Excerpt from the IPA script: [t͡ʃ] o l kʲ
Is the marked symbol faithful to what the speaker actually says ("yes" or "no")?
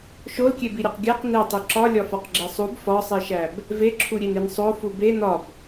no